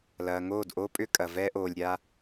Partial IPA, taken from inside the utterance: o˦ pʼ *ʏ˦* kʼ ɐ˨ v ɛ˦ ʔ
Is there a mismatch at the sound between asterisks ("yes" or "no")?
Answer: no